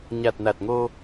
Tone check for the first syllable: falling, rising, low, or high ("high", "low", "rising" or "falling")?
low